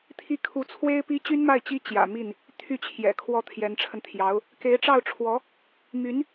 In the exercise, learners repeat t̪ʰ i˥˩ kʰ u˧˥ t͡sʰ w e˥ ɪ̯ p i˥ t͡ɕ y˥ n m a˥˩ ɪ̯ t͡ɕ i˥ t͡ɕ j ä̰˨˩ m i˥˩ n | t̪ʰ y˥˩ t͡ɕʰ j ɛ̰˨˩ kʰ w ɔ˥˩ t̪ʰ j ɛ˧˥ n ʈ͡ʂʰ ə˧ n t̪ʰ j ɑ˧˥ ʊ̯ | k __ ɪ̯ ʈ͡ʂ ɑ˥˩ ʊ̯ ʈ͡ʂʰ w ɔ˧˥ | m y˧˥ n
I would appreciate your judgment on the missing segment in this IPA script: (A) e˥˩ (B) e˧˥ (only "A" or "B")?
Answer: B